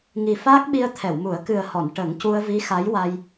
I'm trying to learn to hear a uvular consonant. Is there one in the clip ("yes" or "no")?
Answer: no